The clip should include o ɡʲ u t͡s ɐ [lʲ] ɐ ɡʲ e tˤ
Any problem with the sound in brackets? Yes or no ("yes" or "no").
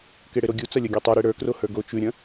no